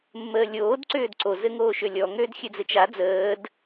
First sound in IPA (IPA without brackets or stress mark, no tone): mː